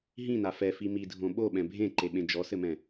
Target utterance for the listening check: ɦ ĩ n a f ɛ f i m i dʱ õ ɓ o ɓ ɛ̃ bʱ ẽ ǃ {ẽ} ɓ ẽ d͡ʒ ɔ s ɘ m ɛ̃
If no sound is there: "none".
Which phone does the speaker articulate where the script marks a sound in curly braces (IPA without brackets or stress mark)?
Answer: e